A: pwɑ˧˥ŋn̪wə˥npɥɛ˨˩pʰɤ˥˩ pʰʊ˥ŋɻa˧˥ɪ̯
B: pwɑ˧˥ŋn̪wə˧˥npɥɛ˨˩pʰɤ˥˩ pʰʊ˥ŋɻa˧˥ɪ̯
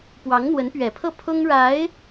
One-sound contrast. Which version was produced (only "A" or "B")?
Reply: B